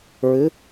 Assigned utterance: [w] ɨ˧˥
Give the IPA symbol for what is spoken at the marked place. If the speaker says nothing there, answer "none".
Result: ɹ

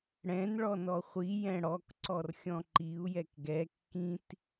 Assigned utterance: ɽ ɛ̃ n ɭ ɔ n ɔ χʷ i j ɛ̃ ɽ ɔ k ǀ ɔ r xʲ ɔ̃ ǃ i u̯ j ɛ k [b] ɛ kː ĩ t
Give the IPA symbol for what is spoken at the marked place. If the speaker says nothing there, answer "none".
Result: ɡ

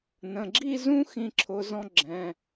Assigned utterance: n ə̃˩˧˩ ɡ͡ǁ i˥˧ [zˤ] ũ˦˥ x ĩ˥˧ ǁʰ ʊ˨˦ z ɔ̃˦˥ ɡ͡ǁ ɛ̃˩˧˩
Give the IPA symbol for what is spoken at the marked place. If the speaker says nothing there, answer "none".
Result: z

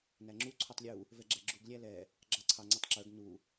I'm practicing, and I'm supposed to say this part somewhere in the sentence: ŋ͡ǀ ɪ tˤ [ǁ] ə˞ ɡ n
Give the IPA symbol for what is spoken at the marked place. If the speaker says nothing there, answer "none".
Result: ǁ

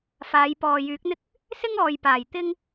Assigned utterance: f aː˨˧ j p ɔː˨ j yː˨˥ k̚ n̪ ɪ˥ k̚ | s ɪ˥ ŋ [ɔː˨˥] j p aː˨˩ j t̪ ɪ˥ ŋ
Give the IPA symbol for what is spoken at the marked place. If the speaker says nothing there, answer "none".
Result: ɔː˨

